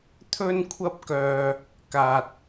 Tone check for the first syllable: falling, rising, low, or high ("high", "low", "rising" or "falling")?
high